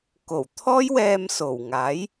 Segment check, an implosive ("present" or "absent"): absent